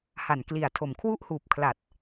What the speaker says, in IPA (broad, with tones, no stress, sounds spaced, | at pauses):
h a˨˩ n k l i˨˩ a̯ tʰ o˨˩ m kʰ w u˦˥ ʔ h uː˨˩ p̚ kʰ l a˨˩ t̚